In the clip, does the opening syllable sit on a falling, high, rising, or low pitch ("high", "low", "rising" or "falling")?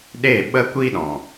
falling